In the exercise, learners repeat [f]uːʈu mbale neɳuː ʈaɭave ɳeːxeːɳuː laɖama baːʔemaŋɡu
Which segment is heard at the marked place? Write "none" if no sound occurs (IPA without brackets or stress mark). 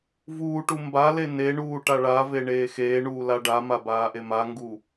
v